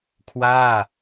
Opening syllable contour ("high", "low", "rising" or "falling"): falling